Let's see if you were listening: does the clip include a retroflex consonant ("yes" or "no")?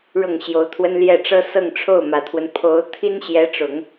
yes